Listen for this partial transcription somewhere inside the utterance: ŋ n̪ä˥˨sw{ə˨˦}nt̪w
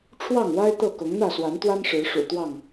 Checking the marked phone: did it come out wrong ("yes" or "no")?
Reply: yes